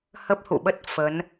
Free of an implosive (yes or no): no